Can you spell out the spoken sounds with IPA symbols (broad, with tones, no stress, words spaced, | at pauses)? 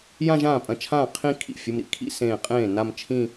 jã˥˧ʒãː˥˩pʼɐ̃˧˩t͡ʃʰãː˥˩ qʰĩ˥˧ kʰḭ˧˩fʲu˩˧˩mɾḭ˥kʰḭ˥˧ sẽː˧˩qʼẽː˥˩ na˥˧m t͡ʃʰĩ˥˧